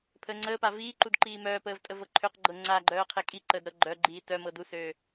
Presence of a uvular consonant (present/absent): present